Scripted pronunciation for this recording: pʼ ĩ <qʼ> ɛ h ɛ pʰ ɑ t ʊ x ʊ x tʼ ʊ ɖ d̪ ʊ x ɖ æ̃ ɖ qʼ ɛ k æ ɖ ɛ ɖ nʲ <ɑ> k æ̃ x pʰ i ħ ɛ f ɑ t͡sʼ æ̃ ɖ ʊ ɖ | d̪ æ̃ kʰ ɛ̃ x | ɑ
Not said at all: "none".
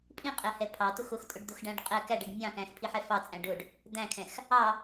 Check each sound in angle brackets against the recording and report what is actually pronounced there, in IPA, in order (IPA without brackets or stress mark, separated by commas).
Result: qʼ, ɑ̃